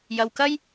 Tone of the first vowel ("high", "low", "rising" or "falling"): low